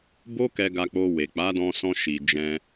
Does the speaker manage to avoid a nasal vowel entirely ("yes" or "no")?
no